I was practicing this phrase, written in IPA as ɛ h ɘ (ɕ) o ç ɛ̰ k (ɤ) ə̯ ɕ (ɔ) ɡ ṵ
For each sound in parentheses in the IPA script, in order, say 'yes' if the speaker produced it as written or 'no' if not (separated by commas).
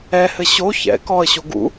yes, no, no